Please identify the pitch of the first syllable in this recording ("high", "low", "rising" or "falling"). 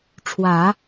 low